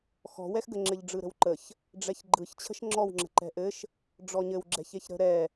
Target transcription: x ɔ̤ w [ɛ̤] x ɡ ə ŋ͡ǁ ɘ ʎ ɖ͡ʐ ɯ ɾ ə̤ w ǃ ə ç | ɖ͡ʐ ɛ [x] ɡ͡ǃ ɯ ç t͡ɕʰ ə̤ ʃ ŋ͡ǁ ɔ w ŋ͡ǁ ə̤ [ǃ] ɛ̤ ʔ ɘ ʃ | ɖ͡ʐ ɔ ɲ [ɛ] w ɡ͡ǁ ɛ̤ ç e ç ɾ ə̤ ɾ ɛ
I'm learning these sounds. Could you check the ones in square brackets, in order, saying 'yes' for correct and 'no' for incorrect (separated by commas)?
no, no, yes, no